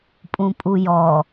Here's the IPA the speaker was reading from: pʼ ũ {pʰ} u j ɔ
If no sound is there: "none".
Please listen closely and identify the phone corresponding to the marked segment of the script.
pʼ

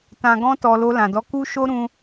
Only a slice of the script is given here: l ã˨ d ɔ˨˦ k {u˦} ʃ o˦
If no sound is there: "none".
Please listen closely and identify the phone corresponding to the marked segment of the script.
u˦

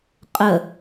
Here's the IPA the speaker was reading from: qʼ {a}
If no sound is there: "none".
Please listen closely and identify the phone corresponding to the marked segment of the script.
ə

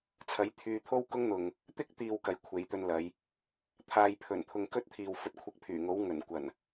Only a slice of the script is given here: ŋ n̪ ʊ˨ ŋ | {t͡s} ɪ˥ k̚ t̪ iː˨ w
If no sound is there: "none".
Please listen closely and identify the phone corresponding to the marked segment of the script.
t̪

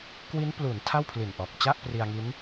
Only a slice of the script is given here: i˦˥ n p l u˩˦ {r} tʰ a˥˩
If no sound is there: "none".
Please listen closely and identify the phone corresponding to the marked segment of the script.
n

